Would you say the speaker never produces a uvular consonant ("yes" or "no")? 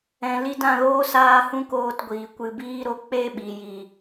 yes